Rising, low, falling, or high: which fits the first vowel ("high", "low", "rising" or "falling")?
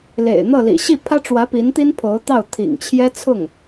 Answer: low